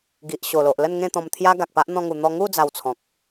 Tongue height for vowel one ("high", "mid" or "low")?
high